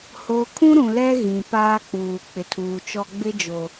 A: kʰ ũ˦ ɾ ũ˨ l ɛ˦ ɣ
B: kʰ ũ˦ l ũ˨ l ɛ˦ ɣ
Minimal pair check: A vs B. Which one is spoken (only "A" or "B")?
A